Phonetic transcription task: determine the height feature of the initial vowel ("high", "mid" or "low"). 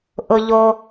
high